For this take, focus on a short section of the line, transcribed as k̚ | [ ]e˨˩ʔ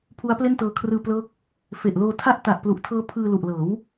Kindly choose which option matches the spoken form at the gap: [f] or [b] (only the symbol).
f